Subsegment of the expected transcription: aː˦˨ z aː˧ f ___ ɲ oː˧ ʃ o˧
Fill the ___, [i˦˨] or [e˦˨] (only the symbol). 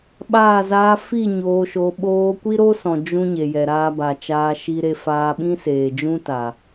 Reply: i˦˨